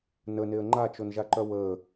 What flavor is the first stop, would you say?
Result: click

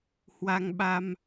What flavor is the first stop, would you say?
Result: implosive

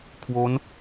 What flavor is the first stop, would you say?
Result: aspirated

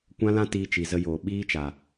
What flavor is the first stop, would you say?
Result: plain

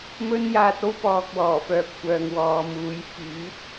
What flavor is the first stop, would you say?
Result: plain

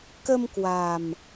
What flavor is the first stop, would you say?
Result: plain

